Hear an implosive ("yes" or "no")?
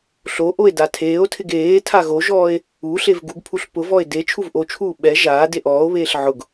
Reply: yes